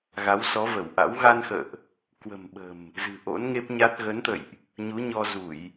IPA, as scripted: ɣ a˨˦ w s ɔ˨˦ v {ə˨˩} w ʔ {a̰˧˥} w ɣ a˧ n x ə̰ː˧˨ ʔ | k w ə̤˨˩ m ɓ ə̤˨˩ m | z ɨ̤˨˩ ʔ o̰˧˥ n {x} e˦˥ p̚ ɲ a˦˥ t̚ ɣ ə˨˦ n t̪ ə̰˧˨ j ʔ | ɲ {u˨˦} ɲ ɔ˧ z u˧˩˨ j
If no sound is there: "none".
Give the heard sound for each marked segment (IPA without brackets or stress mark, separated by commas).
ə˧˩, a̰˧˥, ŋ, u˨˦